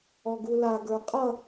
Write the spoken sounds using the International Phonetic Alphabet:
ɔɡula ɡə˞qʼʌ

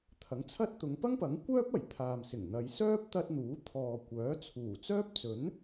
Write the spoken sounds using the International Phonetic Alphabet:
t̪ʰɐ˨˥ŋt͡sʰɐ˥t̚ t̪ʊ˨˧ŋpɐ˥ŋpɐ˨˥ŋkʷœː˥p̚ ɐ˨˩j t̪ʰaː˨msɪ˨˩ŋn̪ɐ˨˧j sœː˥p̚t̪ɐ˧t̚ n̪uː˨˥t̪ʰɔː˨kʷœː˨˥ t͡sʰuː˨˩t͡sœː˥p̚t͡sɵ˨˥n

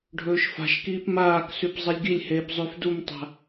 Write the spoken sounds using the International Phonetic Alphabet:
ɖʱɵːʃfa̤ʃkiːp maːksʉp zˤelʲɡilʲheːp zˤʉfdumtˤa̤

